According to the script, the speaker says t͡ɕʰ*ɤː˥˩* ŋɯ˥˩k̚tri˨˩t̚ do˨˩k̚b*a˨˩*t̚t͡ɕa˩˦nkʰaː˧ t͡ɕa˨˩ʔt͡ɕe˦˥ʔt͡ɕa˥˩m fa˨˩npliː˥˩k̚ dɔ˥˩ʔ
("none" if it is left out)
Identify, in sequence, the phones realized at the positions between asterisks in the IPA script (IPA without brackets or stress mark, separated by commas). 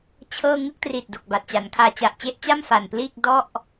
ɤː˥˩, a˨˩